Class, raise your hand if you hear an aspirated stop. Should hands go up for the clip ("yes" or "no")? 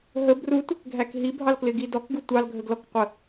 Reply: no